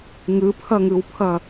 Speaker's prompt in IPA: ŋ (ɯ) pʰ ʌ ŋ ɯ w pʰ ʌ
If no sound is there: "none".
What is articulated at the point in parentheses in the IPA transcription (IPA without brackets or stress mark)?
ɯ